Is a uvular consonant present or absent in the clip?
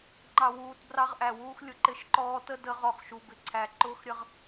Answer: present